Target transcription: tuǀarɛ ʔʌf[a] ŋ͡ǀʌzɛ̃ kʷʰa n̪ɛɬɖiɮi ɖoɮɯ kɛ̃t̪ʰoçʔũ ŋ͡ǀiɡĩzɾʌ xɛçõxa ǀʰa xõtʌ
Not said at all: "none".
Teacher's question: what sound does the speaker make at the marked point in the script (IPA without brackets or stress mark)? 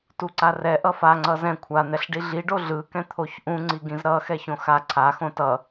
a